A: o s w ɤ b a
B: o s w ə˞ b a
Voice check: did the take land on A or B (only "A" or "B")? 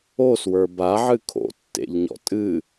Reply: B